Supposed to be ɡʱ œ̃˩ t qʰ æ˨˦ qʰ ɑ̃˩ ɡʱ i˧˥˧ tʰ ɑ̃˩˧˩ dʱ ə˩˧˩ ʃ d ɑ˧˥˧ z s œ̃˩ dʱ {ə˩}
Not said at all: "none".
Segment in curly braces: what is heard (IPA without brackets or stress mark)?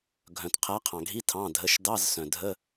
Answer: ə˧˥˧